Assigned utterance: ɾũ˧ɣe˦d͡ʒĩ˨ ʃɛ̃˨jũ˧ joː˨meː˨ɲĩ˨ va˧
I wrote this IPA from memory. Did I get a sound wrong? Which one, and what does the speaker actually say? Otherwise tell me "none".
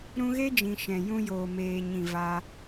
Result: none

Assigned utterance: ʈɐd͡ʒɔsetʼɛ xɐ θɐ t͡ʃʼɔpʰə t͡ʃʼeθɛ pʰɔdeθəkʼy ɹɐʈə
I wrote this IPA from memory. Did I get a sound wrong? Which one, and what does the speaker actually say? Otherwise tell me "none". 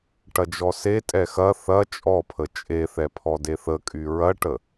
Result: none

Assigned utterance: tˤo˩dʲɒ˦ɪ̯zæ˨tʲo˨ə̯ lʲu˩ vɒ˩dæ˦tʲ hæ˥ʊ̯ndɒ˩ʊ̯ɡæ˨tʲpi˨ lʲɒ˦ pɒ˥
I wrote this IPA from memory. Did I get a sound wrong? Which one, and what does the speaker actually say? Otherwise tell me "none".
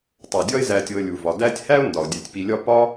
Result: ɡ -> dʲ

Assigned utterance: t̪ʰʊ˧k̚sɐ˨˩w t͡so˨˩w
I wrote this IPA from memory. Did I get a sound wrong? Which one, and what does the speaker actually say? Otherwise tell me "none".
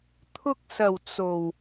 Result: none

